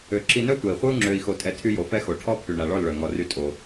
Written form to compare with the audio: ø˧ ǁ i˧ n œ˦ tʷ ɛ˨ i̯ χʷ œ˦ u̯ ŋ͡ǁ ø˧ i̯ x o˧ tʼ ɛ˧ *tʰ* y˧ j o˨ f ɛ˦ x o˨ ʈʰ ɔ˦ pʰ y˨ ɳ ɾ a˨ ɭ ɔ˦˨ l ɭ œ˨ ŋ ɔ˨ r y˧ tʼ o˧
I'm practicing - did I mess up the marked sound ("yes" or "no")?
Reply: no